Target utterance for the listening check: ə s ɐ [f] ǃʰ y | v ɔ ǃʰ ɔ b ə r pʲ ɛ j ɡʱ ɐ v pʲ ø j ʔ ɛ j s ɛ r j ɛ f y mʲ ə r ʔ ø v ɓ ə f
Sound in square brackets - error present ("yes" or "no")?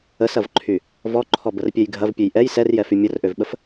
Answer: yes